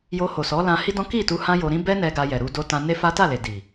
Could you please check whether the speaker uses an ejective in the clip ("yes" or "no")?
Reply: no